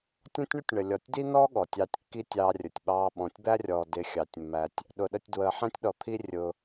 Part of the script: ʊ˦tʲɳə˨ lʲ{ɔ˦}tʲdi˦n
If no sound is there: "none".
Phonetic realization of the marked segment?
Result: ɔ˨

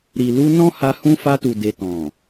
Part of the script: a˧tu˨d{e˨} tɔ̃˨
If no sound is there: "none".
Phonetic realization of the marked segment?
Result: e˨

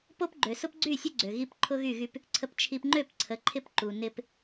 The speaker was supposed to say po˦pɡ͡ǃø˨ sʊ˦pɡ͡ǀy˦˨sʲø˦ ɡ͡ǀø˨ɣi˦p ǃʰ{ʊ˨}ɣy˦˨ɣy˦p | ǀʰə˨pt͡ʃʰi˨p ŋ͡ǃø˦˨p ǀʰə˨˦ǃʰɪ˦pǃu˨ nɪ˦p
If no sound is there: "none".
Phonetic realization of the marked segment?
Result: ʊ˦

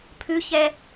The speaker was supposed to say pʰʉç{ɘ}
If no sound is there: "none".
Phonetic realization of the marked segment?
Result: ɛ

